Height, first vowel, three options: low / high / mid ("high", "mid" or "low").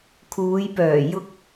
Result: high